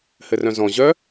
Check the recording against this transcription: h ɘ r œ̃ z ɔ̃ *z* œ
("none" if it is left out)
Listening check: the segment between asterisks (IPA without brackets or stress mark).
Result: ʑ